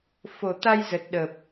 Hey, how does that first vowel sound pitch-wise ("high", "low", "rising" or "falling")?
low